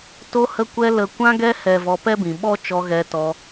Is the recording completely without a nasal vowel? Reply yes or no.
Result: no